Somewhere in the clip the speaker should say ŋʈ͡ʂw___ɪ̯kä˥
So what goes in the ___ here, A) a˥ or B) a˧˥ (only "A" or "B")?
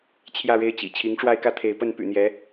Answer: A